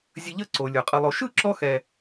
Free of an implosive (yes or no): yes